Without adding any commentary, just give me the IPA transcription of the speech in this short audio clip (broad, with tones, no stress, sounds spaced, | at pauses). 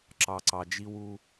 ǁ ɑ˨ ǀ ɑ˨ d͡ʒ i˦ w u˦